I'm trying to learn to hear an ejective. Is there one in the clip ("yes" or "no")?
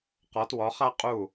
yes